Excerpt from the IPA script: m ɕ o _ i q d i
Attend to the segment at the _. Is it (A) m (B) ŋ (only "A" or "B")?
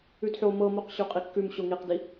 B